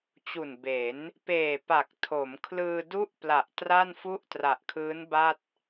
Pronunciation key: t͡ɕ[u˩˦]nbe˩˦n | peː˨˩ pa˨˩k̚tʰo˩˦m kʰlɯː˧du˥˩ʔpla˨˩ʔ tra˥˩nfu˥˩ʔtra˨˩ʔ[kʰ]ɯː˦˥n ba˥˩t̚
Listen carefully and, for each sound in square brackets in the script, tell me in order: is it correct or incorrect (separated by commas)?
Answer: incorrect, correct